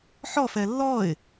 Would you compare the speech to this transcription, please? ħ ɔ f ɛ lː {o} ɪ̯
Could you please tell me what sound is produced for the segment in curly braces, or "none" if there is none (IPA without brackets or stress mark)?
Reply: ɔ